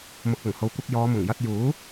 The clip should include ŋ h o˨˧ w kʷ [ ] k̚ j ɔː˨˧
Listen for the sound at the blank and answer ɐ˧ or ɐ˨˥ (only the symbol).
ɐ˧